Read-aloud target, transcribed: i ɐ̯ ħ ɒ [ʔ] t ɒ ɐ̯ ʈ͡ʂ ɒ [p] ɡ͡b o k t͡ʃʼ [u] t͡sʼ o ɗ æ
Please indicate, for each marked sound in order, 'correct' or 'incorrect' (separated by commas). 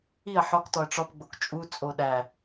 incorrect, correct, correct